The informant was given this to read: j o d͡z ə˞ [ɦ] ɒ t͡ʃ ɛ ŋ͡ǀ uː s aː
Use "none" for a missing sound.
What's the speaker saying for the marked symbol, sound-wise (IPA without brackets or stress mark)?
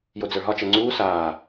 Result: ɦ